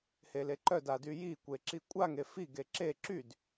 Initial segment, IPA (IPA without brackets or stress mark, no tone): h